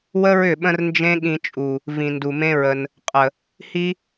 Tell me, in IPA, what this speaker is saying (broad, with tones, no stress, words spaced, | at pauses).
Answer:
wə˦ɹʏ˦˨ ɓə̃˦r nd͡ʒẽ˦ɠĩ˧t͡ʃʼu˨ | vĩ˨ndu˨mẽ˦ɹə˧n | qʼə˨ | hi˦